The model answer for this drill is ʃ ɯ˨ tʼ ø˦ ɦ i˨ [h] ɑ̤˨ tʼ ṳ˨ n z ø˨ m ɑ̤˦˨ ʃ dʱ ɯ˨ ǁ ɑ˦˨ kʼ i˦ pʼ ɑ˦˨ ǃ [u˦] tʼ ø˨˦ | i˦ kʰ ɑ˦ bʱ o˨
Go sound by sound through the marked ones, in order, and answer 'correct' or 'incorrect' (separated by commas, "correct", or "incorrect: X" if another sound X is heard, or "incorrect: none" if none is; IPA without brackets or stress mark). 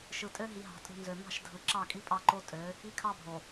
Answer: incorrect: ɦ, incorrect: o˦